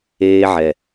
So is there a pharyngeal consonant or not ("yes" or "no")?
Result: yes